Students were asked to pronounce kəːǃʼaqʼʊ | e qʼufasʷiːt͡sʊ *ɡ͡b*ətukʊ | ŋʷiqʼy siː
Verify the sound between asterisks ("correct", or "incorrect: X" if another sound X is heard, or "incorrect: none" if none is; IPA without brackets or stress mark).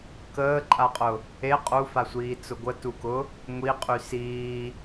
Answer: incorrect: ɡʷ